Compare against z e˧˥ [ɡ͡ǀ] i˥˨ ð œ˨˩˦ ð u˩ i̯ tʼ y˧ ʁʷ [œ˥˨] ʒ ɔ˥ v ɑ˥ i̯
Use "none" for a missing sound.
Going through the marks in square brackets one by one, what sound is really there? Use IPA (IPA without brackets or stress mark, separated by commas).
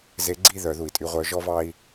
ɡ͡ǀ, œ˧˥